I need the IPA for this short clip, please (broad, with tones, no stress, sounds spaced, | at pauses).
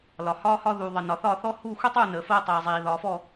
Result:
l ɒ˨ h ɒː˥ h ɒ˥ ð uː˨ ðˤ ə˨ n ɒ˨ θ ɒː˥˨ θ ɔː˥ h uː˥˨ xʷ i˥ tˤ uː˥˨ n əː˨ f əː˥ tˤ iː˨ zˤ iː˨ ð ɒː˨ f ɔ˥˨